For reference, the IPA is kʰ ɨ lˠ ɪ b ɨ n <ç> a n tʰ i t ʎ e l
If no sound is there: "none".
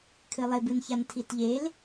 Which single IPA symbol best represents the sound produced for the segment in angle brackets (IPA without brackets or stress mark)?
ç